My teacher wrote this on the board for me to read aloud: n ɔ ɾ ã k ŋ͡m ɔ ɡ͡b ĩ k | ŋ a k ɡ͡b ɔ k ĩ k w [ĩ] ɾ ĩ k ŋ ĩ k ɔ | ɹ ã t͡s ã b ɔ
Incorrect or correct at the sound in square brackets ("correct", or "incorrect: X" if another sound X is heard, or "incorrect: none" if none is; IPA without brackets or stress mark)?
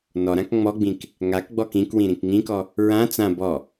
correct